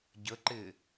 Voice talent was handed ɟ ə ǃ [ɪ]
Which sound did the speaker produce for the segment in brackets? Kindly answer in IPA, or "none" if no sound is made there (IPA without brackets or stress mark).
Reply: ɪ